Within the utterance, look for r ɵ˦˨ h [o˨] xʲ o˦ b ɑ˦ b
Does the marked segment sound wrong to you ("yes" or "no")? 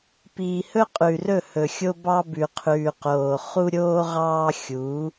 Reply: yes